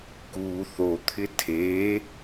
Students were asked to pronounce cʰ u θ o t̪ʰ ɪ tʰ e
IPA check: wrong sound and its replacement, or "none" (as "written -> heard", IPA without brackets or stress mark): cʰ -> k